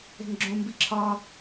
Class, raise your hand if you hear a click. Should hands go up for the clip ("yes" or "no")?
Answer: yes